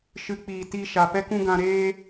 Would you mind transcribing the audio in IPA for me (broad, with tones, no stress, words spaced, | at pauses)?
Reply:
ʃɨ˨˦k͡piː˨ ti˧ ʃa˨pɛ˦kũ˦ɡã˧ ɾeː˦